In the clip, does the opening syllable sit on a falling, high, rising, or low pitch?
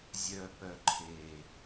low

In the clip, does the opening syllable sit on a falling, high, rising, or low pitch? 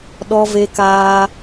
high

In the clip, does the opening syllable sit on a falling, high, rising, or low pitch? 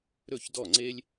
falling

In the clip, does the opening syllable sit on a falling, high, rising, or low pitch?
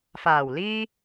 low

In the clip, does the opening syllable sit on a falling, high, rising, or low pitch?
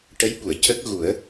rising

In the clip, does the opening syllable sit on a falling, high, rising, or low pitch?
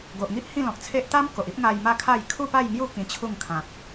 low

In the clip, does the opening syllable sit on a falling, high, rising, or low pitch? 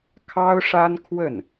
high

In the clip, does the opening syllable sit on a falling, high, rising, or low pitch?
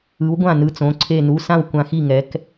rising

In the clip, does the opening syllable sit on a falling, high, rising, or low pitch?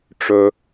low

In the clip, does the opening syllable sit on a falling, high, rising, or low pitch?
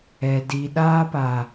low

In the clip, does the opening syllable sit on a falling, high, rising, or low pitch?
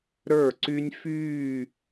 falling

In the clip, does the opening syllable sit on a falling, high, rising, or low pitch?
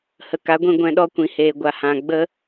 low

